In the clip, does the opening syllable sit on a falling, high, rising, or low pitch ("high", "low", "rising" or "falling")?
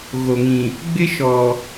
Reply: low